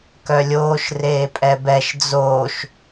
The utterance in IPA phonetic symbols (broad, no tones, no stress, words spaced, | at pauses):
kœlʲoːʃ reːpʼɛbɛʃ d͡zoːʃ